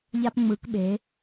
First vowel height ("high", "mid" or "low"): low